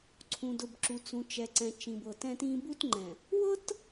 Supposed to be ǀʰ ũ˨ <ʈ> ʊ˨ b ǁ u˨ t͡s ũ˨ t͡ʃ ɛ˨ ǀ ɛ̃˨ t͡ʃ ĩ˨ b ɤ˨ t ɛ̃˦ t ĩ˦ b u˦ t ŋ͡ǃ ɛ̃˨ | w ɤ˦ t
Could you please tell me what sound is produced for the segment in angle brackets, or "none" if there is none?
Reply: d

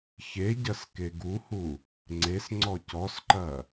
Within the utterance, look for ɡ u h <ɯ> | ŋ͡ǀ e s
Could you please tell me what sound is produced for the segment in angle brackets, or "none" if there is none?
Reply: u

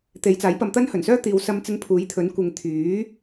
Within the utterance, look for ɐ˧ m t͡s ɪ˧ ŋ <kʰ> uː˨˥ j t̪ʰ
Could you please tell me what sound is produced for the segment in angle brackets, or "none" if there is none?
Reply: pʰ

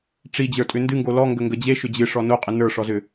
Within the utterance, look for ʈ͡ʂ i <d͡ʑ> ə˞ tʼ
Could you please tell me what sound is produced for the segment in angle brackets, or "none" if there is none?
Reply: d͡ʑ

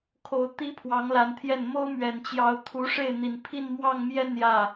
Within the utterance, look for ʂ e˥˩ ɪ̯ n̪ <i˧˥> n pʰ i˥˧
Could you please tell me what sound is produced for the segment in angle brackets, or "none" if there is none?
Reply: i˨˩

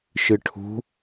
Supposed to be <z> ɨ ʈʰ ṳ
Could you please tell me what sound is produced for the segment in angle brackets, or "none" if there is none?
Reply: ʃ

